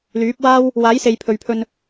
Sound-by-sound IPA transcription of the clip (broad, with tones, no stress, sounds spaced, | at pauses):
l yː˨˥ p̚ w aː˥ w | w aː˨˥ j s e˨ j pʰ ɵ˨ ɥ pʰ ɵ˧ n